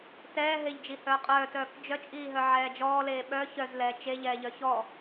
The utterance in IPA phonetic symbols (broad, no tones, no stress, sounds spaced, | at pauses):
t ɛː ɦ e ʎ d͡ʒ i h œː qʼ œː t œː k d͡ʒ œ t͡ʃʼ iː ɦ œ ʕ ɛː d͡ʒ ɔː l eː ɓ œ ç œ z l ɛː t͡ʃ e ʎ ɛː ʎ œ ç ɔ